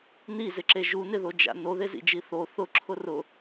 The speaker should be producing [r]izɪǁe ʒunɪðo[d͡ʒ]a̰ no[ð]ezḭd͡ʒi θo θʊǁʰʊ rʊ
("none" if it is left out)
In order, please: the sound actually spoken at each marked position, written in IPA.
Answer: n, d͡ʒ, ð

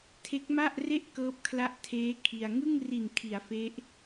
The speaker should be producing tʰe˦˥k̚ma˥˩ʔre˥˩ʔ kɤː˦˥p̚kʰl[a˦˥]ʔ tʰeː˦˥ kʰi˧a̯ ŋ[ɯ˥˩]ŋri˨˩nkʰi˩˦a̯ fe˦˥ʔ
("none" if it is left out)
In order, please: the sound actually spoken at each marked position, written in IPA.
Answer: a˦˥, ɯ˥˩

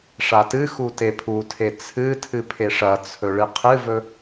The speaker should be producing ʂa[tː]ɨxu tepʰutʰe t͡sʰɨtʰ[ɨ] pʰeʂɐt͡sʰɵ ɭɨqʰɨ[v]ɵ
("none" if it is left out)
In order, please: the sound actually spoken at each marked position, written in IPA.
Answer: t, ɨ, v

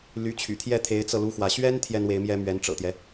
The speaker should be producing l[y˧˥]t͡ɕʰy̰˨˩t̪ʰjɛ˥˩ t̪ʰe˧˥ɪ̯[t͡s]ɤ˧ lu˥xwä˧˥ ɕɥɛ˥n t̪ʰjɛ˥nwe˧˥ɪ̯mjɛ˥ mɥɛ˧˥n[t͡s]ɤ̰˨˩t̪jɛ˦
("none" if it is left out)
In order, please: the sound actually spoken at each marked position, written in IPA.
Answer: y˧˥, t͡s, ʈ͡ʂ

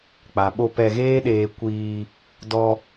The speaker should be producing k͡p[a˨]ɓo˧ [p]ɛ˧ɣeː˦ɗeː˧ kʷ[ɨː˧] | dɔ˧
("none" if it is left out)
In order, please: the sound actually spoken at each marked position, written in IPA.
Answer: a˨, p, iː˧

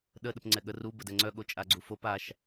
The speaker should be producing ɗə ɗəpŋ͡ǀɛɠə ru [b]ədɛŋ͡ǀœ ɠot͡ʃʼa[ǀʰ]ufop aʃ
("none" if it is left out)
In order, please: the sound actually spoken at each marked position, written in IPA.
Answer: b, ɡ͡ǀ

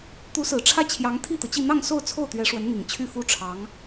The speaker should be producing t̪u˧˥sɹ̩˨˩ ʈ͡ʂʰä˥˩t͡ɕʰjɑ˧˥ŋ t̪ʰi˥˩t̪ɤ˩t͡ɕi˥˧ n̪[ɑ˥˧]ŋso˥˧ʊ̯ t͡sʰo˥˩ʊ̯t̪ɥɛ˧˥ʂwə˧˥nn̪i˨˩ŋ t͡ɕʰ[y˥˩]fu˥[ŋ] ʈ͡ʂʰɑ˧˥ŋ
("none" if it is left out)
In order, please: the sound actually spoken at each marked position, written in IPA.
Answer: ɑ˥˧, y˥˩, none

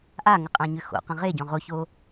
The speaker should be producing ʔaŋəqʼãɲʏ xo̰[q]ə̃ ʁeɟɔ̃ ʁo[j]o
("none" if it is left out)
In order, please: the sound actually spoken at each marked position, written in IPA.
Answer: q, ç

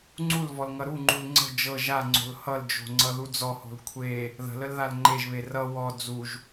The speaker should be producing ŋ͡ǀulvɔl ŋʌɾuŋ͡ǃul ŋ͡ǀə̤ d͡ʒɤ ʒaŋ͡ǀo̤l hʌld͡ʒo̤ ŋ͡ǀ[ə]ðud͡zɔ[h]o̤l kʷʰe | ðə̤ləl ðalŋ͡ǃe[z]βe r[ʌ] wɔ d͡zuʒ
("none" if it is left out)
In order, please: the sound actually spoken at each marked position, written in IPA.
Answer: ʌ, h, ʒ, ʌ

